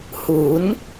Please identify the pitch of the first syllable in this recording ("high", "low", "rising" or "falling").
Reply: rising